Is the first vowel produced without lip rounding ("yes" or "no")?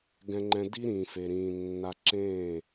yes